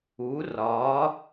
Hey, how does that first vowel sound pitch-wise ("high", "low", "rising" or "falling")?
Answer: rising